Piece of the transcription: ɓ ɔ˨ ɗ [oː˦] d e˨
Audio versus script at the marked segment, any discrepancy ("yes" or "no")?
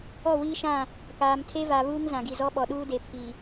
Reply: yes